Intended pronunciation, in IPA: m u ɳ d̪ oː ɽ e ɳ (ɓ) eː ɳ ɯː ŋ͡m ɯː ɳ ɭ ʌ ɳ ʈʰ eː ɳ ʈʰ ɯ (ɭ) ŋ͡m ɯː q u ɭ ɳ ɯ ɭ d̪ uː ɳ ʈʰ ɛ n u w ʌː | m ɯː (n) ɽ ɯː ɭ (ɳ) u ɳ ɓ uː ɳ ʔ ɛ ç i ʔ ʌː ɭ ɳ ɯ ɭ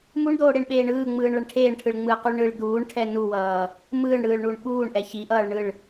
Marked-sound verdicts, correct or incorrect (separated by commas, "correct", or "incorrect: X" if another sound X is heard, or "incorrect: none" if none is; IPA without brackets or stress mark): correct, correct, incorrect: ɳ, correct